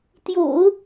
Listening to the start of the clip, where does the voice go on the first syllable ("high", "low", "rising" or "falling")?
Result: low